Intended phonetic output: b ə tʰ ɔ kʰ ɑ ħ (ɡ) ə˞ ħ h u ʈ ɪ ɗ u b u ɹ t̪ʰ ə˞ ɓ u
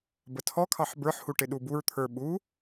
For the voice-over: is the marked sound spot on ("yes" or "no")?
no